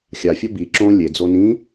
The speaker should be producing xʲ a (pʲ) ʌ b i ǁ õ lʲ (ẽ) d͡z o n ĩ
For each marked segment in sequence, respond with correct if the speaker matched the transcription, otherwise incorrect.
incorrect: fʲ, incorrect: e

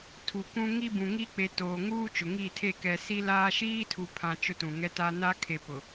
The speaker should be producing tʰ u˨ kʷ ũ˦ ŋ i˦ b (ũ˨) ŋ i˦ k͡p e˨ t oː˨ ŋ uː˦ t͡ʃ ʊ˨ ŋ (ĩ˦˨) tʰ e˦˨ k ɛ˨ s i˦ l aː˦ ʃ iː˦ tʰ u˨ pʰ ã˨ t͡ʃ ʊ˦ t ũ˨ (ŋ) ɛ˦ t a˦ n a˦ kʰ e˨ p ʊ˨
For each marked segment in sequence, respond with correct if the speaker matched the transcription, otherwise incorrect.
correct, incorrect: i˦˨, correct

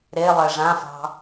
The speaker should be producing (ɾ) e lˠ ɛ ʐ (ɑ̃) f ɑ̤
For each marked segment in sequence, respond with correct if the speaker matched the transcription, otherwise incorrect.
correct, incorrect: ã

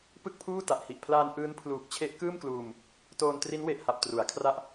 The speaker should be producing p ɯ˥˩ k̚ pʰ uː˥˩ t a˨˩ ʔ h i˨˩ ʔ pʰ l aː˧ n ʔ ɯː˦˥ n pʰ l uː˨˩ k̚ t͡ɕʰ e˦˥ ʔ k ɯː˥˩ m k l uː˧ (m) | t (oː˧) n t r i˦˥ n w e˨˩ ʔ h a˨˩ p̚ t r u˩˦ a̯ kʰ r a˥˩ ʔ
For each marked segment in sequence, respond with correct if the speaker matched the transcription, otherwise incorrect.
correct, correct

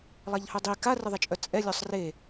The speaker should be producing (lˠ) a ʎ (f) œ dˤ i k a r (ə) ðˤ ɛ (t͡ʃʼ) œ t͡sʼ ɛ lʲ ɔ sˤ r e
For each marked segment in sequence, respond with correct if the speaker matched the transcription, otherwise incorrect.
correct, incorrect: h, correct, correct

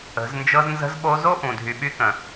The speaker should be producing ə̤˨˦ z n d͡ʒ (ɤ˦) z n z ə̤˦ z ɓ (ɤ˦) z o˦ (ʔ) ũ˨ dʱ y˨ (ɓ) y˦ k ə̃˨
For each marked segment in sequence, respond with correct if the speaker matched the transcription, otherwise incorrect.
correct, incorrect: o˦, correct, correct

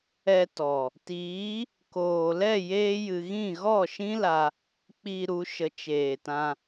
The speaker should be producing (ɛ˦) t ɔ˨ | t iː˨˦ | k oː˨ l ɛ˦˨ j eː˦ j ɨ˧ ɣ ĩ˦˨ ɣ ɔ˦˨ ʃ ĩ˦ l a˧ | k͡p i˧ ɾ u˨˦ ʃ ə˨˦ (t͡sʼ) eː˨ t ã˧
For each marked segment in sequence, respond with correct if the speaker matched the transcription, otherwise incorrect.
incorrect: ɛ˧, incorrect: t͡ʃ

